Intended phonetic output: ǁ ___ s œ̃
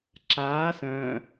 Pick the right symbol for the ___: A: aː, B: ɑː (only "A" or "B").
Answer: A